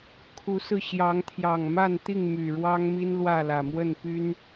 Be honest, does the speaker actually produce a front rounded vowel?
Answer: yes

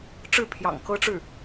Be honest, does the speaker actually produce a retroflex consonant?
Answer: yes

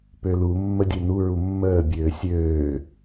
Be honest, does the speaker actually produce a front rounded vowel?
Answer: yes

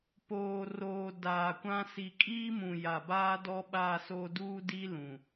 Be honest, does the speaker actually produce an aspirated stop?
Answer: no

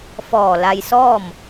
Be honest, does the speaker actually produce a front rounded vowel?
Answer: no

